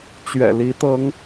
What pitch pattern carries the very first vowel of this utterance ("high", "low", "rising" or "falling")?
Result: low